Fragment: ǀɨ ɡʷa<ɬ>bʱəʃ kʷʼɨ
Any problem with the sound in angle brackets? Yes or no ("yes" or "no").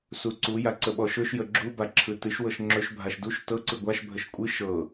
yes